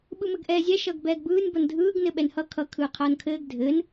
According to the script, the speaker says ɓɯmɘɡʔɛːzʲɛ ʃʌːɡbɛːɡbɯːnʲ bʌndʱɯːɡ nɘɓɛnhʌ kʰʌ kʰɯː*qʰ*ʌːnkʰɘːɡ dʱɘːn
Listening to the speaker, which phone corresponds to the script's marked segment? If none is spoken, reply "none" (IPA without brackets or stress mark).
qʰ